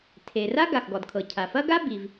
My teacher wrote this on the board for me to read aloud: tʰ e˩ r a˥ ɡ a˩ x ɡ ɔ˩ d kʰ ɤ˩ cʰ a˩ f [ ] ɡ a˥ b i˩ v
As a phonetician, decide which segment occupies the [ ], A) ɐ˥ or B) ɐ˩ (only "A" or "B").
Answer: A